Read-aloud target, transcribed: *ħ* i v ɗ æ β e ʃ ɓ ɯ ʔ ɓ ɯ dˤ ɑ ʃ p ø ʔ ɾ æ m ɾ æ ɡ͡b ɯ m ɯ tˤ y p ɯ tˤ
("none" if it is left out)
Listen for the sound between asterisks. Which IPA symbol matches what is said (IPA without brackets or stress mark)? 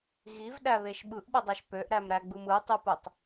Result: ɣ